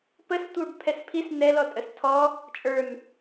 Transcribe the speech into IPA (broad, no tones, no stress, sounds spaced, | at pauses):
p ə s tʷ ə˞ b pʰ ɛ s pʰ i s n ɛ l ɔ tʼ ə s tʰ ɔ | t͡ʃʼ ə˞ n